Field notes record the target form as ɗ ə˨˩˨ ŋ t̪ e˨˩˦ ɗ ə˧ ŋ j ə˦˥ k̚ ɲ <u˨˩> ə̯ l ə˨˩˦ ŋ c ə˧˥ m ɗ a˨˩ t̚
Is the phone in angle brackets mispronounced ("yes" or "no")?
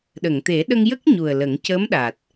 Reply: no